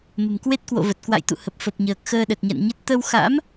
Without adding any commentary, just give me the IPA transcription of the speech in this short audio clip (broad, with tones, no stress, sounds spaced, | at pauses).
m ə̤˨˩ m k w e˦˥ t̚ k w o̰˧˨ v ə˨˩ t̚ k w a̰˧˨ j t̪ ṵ˧˨ h ə˨˩ p̚ f ə˨˩ p̚ ɲ əː˨˩ k̚ x əː˧ ɗ ə˨˩ t̚ ɲ a̰˧˨ n ɲ ə˦˥ t̚ t̪ ə˧ w x a̰˧˥ m